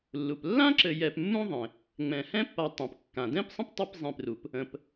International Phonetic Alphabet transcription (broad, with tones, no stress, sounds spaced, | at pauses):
lː u˩ p lː ã˥ ǁ ɘ˨ j ɛ˨ p mː ũ˥ ðˤ ẽ˩ | ŋ͡m ɛ̃˩ h ɛ̃˥ pː a˨ tˤ ɛ̃˩ p kː ã˩ d ɛ̃˥ p sˤ ə̃˥ p tˤ e˦ p zˤ ẽ˨ p r u˩ p | ə̃˨ p